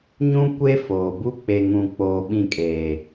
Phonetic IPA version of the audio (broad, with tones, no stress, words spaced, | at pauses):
ɲũ˦ kʷe˦ foː˨ bu˦ k͡pe˨ŋũ˨ k͡poː˨ ɓĩ˦˨kʼeː˨